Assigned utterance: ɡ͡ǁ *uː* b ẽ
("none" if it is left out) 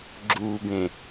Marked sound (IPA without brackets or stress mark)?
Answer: uː